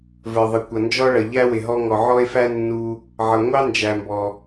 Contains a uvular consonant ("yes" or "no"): no